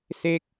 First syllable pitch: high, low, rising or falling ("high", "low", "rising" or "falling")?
falling